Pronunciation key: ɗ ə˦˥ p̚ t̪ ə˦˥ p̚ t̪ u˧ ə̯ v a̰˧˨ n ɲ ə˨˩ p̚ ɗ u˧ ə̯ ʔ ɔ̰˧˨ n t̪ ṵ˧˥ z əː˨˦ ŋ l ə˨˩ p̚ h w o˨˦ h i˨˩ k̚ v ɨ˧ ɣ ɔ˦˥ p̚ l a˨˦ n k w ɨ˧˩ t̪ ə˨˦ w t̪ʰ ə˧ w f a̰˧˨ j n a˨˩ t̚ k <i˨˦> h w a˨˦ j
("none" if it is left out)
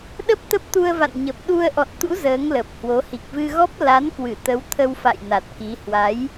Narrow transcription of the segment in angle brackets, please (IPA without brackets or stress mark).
i˨˦